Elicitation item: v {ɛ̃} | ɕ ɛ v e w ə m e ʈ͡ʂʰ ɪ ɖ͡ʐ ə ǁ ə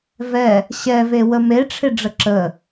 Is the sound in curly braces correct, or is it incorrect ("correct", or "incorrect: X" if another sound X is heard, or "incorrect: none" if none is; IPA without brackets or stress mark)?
incorrect: ɛ